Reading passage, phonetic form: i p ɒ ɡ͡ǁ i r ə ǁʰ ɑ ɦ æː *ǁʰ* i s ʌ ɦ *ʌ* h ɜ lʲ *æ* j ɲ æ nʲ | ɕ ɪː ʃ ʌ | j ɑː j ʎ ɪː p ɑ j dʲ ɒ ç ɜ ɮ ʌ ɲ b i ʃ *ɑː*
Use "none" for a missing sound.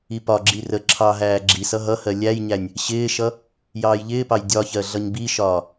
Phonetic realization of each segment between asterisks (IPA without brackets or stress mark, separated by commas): ɡ͡ǁ, ʌ, æ, ɒː